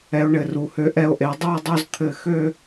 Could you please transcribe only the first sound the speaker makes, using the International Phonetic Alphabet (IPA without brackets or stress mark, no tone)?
ɛ